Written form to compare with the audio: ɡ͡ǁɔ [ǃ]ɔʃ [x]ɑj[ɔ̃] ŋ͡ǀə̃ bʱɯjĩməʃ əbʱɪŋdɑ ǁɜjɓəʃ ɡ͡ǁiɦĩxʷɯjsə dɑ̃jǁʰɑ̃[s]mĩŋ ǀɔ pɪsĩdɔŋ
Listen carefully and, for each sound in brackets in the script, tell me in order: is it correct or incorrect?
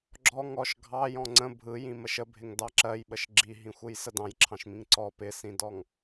incorrect, incorrect, correct, incorrect

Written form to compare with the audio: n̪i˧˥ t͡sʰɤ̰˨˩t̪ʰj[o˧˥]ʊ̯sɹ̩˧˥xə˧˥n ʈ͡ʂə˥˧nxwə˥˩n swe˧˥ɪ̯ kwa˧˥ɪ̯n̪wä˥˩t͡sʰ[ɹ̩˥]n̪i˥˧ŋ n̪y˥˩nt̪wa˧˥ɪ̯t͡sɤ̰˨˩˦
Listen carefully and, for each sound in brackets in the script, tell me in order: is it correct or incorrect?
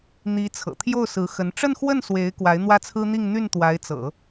incorrect, correct

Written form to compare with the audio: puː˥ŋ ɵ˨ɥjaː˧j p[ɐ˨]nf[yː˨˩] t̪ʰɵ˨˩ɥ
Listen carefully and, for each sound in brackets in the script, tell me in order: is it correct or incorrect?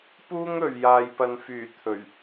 correct, correct

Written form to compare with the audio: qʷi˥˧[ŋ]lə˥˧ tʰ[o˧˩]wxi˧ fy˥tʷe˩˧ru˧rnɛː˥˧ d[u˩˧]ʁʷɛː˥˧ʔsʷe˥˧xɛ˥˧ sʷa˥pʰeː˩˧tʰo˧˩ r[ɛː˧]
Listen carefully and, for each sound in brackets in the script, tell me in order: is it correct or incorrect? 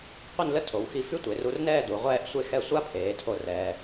incorrect, incorrect, correct, correct

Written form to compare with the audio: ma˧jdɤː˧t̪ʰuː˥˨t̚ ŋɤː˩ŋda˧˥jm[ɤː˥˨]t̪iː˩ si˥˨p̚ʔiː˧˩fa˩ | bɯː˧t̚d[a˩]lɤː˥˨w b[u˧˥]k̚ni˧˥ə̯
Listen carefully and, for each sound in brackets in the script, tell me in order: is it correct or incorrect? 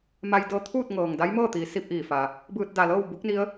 correct, correct, correct

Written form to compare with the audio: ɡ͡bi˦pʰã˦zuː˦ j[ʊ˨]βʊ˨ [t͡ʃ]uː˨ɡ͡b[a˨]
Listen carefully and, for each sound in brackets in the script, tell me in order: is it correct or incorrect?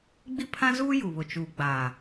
incorrect, correct, incorrect

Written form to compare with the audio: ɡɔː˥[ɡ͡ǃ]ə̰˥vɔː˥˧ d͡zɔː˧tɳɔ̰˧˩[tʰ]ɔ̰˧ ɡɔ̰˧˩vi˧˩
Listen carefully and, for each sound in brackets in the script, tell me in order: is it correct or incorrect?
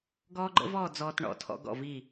correct, correct

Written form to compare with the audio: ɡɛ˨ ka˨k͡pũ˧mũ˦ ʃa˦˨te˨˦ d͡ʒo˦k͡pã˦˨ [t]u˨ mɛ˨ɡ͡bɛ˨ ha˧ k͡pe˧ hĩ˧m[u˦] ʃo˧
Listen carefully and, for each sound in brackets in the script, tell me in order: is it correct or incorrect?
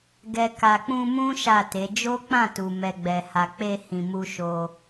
correct, correct

